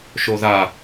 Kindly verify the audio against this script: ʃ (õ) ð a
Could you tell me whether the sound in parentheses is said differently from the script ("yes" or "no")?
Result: yes